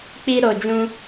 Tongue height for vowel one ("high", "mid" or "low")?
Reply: high